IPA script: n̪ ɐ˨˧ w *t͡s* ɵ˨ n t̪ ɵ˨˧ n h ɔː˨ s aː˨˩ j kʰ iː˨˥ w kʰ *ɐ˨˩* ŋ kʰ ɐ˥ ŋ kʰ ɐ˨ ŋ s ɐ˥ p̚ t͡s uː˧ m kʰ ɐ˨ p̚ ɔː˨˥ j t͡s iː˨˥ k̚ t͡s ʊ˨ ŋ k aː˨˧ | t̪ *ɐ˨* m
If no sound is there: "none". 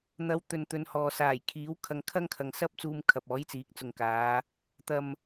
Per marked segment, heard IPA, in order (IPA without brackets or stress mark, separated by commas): t̪, ɐ˧, ɐ˨